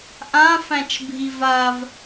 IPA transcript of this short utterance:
ʔ ã f æ̃ t͡ʃ bʱ i v a v

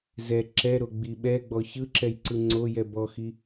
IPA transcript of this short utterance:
z ɛ ǁ ɛ ɾ o ɡ͡b i ɓ ɛ ɡ͡b ɔ ç ɯ ǁ ɛ j ǀ ɯ ŋ͡ǀ o j ɛ b ɔ x i

